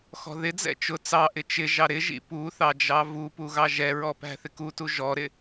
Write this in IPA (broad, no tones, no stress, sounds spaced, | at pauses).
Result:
x ɔ̤ ð ɪ d͡z ɛ̰ t͡ʃ ʊ t͡s ɑ ʔ ɪ t͡ʃ ɪ ʒ ɑ ɾ ɪ ʒ ḭ p u θ ɑ d͡ʒ ɑ v u p u ɣ ɑ ʒ ɛ ɹ ɔ p æ̤ θ ɪ k u t u ʒ ɔ ɾ ɪ